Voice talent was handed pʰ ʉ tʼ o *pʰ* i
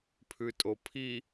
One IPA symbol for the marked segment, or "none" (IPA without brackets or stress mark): pʰ